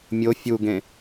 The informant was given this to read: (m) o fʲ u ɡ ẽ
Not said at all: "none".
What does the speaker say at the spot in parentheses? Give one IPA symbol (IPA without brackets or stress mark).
mʲ